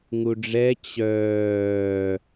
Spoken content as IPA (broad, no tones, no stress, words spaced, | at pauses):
ŋuɖ͡ʐɛ t͡ɕœː